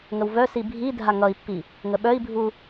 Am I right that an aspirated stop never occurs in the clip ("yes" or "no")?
yes